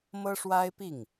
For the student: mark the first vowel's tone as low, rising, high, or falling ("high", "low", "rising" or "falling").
high